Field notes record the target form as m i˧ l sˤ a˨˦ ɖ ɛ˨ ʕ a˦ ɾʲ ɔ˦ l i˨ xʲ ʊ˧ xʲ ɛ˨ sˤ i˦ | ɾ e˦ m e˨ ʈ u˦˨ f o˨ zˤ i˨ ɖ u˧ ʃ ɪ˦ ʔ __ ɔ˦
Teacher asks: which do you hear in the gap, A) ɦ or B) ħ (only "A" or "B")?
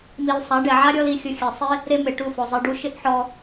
B